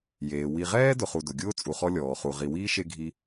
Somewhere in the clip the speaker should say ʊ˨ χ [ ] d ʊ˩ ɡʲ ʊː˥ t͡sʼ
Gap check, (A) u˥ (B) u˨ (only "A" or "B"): B